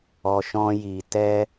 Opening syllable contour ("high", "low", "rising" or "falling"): low